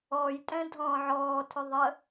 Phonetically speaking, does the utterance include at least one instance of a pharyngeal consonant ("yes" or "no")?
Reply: yes